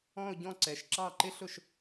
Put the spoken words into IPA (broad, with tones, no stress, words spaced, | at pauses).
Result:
ɔ̃˥˧ʊ̯ɟɔ̃˥˧ǀɛ˨˦ʃ ǁɑ˥˩ǃɪ˥ ɬʊ˥˩ʃ